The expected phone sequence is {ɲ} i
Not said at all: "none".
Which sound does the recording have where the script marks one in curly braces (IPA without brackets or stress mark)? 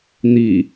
n̪